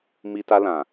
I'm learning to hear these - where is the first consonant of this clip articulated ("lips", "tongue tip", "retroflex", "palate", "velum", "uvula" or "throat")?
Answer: lips